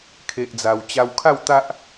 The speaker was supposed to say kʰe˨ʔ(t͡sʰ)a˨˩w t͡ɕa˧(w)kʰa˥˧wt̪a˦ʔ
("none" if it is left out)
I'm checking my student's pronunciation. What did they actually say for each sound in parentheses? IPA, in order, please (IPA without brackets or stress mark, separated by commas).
d͡z, w